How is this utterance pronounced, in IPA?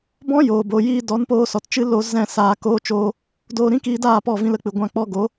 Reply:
b ɔ̃˦ j oː˨ b o˨ j iː˧ d ɔ˨˦ n p oː˧ s ɔ˨ t t͡ʃ ɨ˧ l o˧ z ɛ̃˦˨ s aː˧ k oː˦ t͡ʃ oː˦ | d oː˧ ɾ ĩ˦ k iː˧ d aː˦˨ p ɔ˦˨ v ĩ˧ l ə˧ k͡p ɨ˨ ɡʷ ã˧ k͡p ɔ˧ ɡ o˨˦

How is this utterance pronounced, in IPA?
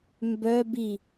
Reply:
m b œ b i

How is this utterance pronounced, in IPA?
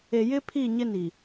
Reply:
e˨ j ɪ˦ pʰ i˦˨ ɲ ɪ˦ n i˨

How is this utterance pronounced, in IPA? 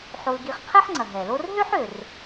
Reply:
ħ o˨ l ɡ i˨ χ qʰ ɛ˦ ħ ŋ͡ǀ ɐ˩ ɦ ɛ˩ l o˦ r ɦ ø˥ ħ ø˩ r

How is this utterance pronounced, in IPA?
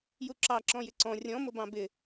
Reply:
j u ǁ ɑ ǁ ɔ̃ j ɪ ǀ ɔ̃ rʲ ɔ̃ m ʊ b ɑ̃ b ɪ

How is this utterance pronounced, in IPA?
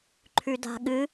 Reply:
ǃʰ ʉ d a̤ ɠ ɨ

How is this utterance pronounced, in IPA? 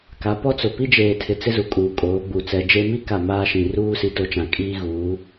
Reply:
k a˨˦ p ɔ˦ t͡s ʊ˨ p i˦ d͡ʒ eː˨ tʰ ɪ˨ t͡s ɪ˦ z u˨ kʼ uː˨ kʼ oː˨˦ ɡ͡b u˨ t͡s ɛ˨ d͡ʒ e˦ m i˦ k a˦˨ m aː˦ ʃ ĩ˨ r uː˦ s i˨˦ t o˨ t͡ʃ ã˨ kʼ iː˦ ɣ uː˨˦

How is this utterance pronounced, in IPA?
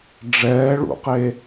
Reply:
ɖ͡ʐ ɛː ɭ ṵ q e

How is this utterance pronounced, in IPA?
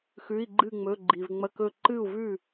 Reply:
x ʉ˩˧˩ i̯ ɡ͡ǃ ɨ˧˩ ŋ͡m ɵ˩˧˩ ɡ͡ǃ i˩ v ŋ͡m ɐ˧˩ k ɵ˧˩ ǃ ɨ˥˩ u̯ v ʉ˥˩

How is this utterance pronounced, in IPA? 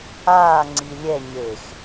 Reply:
aː ŋ͡ǀ i lʲ ɛ ɲ e x

